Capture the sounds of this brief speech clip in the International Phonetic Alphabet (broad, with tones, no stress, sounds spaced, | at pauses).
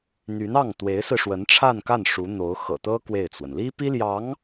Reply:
n̪ y˧˥ n ɑ˥˩ ŋ t̪ w e˧˥ ɪ̯ s ɹ̩˧ ʂ w ə˧˥ n ʈ͡ʂʰ a˥˧ n k a˥˩ n ʂ u˧˥ n̪ o˧˥ ʊ̯ x ɤ̰˨˩ t̪ ɤ˥ k w e˥˩ ɪ̯ t͡s w ə˩ n l i˥ p i˥ l j ɑ˧˥ ŋ